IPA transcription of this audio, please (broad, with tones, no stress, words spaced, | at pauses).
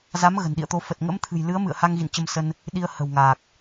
za˨˦m ɣə̤˨˩nɗḭ˧˨ə̯t̪o˧ fə˨˩t̚ ŋə̰˧˥mt̪ʰɨ̤˨˩jlɨ˨˦ə̯ mɨ̰˧˨ə̯ha˧ŋɣḭ˧˨n t͡ɕə˧msə˧n | ɗi˧ə̯ hə̤˨˩wŋaː˨˩k̚